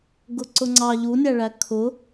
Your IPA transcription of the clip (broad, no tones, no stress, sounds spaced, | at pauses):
ɡ ʊ ǀ ʊ ŋ͡ǀ ɑ ʎ u nʲ æ ɭ æ kʰ ʊ